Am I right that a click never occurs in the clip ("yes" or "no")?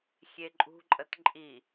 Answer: no